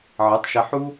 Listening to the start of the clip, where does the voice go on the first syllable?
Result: rising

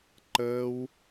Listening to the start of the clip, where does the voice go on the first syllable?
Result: high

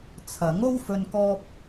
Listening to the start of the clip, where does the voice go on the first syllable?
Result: rising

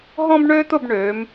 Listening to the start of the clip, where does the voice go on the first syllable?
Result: high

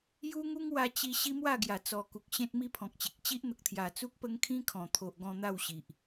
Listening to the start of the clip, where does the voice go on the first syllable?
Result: high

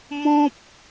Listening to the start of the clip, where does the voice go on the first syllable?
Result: high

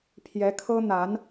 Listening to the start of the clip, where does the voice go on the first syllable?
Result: rising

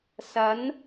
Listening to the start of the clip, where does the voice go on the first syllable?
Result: rising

